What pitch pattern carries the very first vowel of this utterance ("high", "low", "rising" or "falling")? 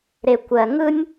low